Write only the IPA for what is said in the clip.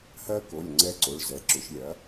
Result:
h ɜ˦ k o˩˧˩ lʲ ŋ͡ǀ ɛ˦ ǀ o˩˧˩ ɭ z ɛ˩˧ ǁ ʏ˩˧ ʃ lʲ ɐ˩˥

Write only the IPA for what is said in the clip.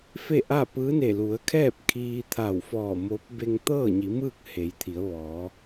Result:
f e˥˨ ʔ a˥˨ p ɯː˧˥ n e˧˩ l u˩˧ ə̯ kʰ ɛː˥˨ p̚ kʰ iː˧ t̪ʰ a˧˩ w f ɔː˧˩ m oː˧˥ p̚ b e˧ ŋ t̪ ɤː˥˨ ɲ i˩˧ m ɯː˥˨ k̚ h e˩˧ j t̪ʰ i˩˧ ə̯ ʋ ɔː˩˧

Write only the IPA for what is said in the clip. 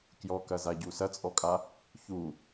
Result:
k j ɔ k ɐ z a ɟ u s ɐ t͡sʼ ɔ kʼ a | ç u

